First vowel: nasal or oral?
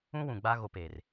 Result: nasal